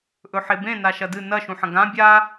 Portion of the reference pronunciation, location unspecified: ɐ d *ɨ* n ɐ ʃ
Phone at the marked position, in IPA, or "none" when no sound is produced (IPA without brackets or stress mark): ɨ